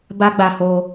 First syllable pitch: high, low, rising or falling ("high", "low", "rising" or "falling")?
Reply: high